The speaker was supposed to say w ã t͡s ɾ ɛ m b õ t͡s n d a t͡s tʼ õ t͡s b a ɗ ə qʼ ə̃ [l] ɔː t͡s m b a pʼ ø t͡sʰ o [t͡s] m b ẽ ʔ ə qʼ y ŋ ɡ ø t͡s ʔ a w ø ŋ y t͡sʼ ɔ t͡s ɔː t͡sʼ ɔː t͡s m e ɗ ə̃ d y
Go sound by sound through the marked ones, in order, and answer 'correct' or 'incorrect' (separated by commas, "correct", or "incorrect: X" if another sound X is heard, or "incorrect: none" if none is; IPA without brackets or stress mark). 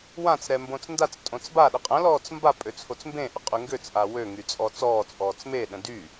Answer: correct, correct